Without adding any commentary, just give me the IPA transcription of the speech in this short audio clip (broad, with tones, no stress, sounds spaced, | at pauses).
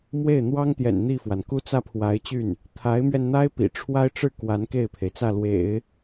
m w e˥˩ ɪ̯ n̪ w ɑ˥ ŋ t̪ j ɛ̰˨˩ n n̪ i˥˩ f w a˩ n k u˥ t͡s ä˥˩ pʰ w a˧˥ ɪ̯ t͡ɕ y˥˩ n | t̪ʰ a˧˥ ɪ̯ m ɥ ɛ˧ n n̪ a˥ ɪ̯ p ḭ˨˩ ʈ͡ʂʰ w a˥ ɪ̯ ʈ͡ʂ ɻ̩˥˩ k w a˧˥ n k e˥˩ ɪ̯ pʰ e˩ ɪ̯ t͡s ä˥˩ l w ḛ˨˩˦ ɪ̯